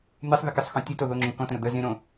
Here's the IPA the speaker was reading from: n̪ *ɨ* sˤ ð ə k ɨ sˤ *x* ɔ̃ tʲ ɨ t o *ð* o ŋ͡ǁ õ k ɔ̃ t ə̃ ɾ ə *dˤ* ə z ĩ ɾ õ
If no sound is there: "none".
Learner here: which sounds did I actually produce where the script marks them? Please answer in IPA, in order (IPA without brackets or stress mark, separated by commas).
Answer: ɨ, x, ð, d̪